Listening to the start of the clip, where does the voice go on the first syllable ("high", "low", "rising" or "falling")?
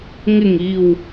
low